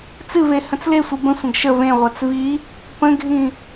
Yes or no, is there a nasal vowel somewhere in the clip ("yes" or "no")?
yes